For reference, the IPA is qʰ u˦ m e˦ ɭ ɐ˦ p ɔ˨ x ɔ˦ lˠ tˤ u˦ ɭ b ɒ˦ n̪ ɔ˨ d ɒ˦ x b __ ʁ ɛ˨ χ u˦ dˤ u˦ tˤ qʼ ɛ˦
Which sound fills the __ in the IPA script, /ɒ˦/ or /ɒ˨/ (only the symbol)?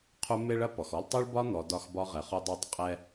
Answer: ɒ˦